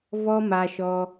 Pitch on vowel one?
high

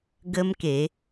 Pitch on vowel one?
high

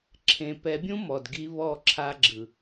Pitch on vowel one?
low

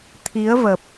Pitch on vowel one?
rising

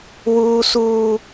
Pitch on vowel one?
high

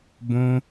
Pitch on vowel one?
high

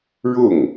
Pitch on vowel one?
falling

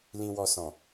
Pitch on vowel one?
low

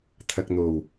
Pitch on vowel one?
low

